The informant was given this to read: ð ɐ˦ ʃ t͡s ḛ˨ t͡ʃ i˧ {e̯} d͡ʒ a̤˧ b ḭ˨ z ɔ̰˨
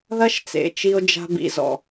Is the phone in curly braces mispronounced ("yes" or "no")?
yes